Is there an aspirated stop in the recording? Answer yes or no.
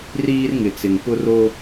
no